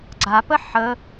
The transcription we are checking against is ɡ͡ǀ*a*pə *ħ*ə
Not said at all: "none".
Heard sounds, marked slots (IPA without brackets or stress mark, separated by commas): a, ħ